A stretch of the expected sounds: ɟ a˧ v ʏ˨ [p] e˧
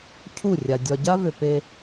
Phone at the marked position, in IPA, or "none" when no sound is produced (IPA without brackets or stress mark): p